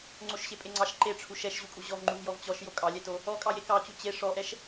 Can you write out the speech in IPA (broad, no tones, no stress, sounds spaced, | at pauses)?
ŋ͡ǀ o ʃ ɕ e pʼ e ŋ͡ǀ ɑ ʃ ǃ e ʈ͡ʂʰ u ʃ ɛ ʃ ʑ u kʼ u ʑ ɔ v ŋ͡ǃ u v j ɔ v t͡ɕ ɔ ʃ j o kʼ ɑ lʲ ɛ t o | ɔ kʼ ɑ j e k ɑ t͡ɕ u t͡ɕ e ʂ ɔ ʔ ɛ ʃ